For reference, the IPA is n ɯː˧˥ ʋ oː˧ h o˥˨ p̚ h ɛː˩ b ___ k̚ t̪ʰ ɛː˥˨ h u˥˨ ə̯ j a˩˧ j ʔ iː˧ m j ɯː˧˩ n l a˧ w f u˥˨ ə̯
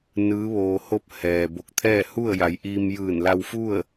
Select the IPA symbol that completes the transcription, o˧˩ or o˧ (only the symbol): o˧˩